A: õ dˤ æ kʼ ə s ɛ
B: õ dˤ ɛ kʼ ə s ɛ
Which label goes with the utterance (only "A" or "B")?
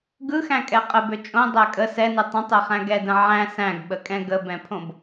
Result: A